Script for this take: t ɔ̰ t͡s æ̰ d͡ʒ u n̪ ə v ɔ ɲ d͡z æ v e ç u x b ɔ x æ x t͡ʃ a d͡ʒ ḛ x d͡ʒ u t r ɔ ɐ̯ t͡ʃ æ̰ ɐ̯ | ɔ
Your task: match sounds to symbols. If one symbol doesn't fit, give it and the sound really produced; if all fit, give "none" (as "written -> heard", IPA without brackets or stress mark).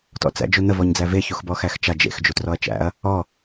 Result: none